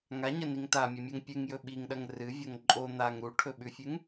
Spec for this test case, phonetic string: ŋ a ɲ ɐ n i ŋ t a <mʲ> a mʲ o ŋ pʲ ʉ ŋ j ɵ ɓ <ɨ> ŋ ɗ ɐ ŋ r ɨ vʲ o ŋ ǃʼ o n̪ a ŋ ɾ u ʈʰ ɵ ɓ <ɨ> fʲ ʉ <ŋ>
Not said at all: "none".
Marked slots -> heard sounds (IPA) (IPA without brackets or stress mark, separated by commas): mʲ, i, ʉ, ŋ